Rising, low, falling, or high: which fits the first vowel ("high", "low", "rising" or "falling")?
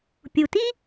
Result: low